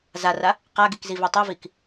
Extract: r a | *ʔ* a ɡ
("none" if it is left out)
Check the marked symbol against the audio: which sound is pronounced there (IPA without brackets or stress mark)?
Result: q